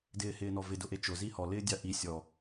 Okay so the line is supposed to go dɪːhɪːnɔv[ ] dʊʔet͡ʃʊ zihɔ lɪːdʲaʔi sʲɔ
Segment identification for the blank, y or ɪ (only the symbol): ɪ